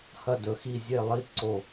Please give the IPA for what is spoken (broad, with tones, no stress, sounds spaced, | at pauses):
h ɐ˧˩ d ɵ˩˧ x i˧˩ zʲ e˧˩ lˠ i˧˩ ǀ o˧˩